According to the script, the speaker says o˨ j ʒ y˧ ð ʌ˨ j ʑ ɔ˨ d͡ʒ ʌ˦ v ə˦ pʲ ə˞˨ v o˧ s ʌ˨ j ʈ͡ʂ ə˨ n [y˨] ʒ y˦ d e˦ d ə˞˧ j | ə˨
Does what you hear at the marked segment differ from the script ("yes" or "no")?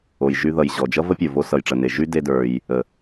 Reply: yes